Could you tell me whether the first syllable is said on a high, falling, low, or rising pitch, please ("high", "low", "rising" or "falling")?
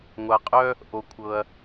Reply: low